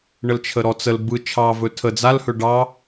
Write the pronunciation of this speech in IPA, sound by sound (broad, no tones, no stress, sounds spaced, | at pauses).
ɳ ə l t͡ʃʰ ə ɾ ɔ t͡s ə l b ɯ t͡ʃʰ ɑ v ɵ tʰ ə d͡z a l h ɵ ɖ ɑ